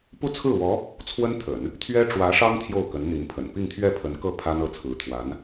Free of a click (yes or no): yes